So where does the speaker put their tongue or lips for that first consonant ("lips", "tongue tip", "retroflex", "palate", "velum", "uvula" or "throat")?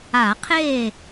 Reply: uvula